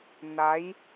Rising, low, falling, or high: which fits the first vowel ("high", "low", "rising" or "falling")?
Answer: rising